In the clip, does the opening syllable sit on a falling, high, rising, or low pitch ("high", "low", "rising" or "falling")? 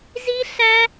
high